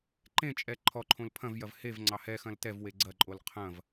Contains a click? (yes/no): yes